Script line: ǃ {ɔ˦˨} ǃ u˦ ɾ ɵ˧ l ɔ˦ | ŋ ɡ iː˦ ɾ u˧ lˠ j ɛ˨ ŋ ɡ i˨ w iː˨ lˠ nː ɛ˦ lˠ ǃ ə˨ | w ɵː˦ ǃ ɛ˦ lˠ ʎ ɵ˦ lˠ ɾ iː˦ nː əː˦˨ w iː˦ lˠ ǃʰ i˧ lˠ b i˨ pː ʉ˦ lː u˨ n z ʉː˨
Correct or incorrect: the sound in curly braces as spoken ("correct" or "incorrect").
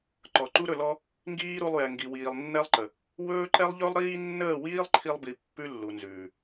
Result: incorrect